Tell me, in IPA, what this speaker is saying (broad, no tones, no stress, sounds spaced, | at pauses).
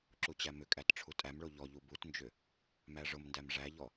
ǁ u t͡ɕ æ m ʏ kʼ æ t ʈ͡ʂʰ u tʼ æ m ɭ o ʎ ɔ ʎ u b u t n d͡ʒ ʏ | m æ ʐ ʊ m n d æ m ʐ æ ʎ ɔ